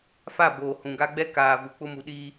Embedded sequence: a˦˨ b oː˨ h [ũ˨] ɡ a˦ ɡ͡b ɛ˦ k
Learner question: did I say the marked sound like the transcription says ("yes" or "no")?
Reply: yes